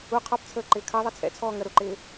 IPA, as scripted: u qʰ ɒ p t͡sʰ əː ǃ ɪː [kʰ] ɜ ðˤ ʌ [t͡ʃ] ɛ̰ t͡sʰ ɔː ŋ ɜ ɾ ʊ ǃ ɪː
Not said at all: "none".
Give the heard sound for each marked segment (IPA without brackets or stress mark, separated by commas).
kʰ, t͡sʰ